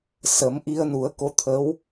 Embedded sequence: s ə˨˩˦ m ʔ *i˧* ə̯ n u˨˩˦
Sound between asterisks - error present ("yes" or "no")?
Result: no